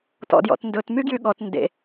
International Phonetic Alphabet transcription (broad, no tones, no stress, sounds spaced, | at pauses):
t ɔ̰ d j ɔ̰ t n d ɵ t m y ɡ j y ɠ ɔ t n d ḛ